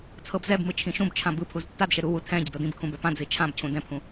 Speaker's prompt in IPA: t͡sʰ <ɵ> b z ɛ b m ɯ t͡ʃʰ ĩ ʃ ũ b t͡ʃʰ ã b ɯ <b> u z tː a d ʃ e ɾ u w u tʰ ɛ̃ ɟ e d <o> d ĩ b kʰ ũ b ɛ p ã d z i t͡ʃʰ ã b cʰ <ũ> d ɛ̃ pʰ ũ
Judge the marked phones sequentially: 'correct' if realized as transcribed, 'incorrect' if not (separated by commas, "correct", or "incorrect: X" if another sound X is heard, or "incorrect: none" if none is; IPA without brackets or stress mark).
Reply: incorrect: ɤ, incorrect: pʰ, incorrect: ɤ, correct